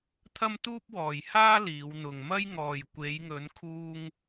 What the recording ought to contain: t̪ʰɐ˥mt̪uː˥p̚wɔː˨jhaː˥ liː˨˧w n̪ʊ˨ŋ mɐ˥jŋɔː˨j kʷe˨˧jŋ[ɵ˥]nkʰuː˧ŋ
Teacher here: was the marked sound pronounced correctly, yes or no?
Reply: no